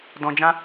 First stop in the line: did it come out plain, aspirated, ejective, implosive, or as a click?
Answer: plain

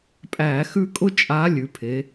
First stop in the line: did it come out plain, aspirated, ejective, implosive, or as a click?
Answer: ejective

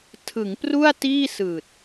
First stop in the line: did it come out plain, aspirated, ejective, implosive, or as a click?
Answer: aspirated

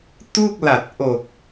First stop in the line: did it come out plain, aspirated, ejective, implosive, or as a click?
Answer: plain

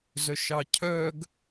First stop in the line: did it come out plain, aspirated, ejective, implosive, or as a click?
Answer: aspirated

